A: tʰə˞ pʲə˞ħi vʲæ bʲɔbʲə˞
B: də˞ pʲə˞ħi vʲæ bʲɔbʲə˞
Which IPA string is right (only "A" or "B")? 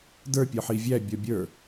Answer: B